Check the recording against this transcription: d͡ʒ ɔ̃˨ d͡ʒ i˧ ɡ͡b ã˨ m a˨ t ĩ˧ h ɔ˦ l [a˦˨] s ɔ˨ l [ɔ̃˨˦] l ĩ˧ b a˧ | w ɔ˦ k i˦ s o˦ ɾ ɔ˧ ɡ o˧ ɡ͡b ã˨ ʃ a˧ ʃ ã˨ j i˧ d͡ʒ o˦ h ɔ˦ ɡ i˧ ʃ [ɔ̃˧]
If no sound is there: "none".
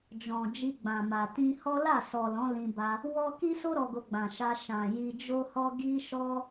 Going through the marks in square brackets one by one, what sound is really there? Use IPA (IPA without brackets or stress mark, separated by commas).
a˦˨, ɔ̃˨˦, ɔ˧